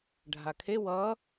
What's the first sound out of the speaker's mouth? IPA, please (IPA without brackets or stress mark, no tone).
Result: ɖʱ